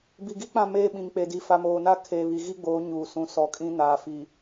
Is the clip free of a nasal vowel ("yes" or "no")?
no